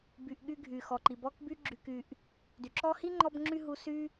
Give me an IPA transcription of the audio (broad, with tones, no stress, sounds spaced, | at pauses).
b y˨ ʔ ɠ y˦ ɡʱ y˩ x ɔ˩ ǃ i˩ b ɔ˦ k b y˦ ɡ͡ǁ y˨ k y˨ ʔ | d y˩ ǁ ɔ˦ h i˥ ŋ͡ǃ ɔ˥ b ŋ͡ǁ y˥ ɦ u˦ s y˥